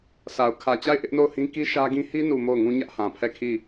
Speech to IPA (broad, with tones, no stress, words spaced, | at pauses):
sa˨ʊ̯ kʰä˨t͡ɕa˦˨ɪ̯ ʔɪ˦ʔno˦˨ʊ̯hĩ˦ ki˦ʃä˦ɡĩ˦ hi˦nu˨ mo˦˨ʊ̯ŋũ˦ɲä˦ʔ hã˨pʰɛ˦˨kʰi˦˨